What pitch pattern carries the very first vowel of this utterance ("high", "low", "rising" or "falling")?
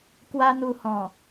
high